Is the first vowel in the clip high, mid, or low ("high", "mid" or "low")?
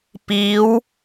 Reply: high